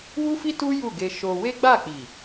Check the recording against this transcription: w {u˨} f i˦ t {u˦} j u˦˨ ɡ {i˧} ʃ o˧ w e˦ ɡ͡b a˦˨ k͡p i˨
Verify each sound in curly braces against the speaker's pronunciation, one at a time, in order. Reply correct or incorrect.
incorrect: u˦, correct, incorrect: e˧

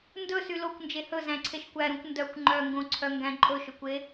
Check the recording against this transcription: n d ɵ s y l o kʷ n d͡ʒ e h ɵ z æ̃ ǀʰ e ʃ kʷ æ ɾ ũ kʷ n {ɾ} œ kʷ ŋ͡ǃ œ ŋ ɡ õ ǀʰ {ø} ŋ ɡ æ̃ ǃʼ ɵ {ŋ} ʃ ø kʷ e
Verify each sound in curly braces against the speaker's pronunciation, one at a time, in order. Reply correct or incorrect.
incorrect: d, incorrect: œ, incorrect: none

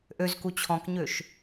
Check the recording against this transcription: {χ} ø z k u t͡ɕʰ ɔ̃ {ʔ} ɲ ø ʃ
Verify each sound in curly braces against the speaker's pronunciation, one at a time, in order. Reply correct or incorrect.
incorrect: ʔ, incorrect: k

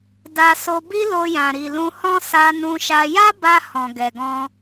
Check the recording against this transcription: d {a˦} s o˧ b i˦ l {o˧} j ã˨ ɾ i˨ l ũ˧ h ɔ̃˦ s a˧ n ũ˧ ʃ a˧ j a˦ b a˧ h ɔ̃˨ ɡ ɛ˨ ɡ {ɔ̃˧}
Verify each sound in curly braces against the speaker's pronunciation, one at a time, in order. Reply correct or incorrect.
incorrect: a˧, correct, correct

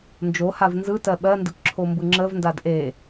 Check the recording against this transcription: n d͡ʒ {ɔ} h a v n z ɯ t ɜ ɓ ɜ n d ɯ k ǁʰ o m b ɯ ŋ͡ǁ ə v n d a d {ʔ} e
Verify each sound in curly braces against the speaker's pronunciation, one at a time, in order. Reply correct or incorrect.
incorrect: o, correct

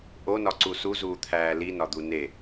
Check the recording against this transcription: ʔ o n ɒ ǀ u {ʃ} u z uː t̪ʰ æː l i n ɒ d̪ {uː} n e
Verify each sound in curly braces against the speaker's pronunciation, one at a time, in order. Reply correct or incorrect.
incorrect: s, incorrect: u

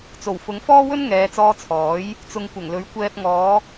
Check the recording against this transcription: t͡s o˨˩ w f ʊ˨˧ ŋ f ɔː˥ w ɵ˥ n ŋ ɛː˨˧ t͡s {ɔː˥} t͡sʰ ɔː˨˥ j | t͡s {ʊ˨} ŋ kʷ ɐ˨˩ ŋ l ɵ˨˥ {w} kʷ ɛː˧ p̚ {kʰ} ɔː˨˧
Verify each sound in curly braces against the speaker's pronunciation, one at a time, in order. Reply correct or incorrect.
incorrect: ɔː˧, correct, incorrect: ɥ, incorrect: ŋ

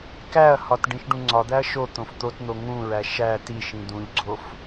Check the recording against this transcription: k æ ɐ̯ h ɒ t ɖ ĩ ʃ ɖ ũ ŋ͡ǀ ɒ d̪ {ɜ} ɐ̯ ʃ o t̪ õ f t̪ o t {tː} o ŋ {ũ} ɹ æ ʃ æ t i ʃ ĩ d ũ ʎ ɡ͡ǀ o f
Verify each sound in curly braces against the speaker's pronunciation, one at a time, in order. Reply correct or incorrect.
incorrect: æ, incorrect: n̪, correct

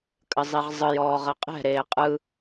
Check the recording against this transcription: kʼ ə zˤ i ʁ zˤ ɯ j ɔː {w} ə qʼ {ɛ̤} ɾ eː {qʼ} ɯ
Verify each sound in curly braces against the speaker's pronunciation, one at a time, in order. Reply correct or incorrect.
incorrect: ʁ, correct, correct

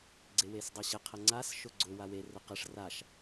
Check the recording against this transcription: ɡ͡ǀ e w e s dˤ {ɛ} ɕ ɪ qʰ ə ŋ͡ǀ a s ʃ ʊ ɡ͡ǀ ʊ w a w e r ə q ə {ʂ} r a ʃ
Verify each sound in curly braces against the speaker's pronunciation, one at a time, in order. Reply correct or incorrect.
correct, correct

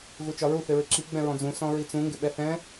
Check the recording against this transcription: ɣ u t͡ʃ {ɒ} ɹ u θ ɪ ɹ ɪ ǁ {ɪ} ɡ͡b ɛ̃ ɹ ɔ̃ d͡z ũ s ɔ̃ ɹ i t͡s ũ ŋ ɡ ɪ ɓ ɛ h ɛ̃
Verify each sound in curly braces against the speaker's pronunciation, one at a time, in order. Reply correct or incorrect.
correct, incorrect: i

